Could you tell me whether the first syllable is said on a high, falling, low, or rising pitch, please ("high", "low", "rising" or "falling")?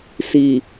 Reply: low